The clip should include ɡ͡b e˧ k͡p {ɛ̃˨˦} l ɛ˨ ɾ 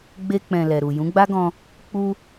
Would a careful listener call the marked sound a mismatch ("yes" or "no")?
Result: yes